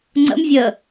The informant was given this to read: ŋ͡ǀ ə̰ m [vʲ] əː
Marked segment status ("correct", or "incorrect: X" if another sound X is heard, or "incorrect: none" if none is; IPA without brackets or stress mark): correct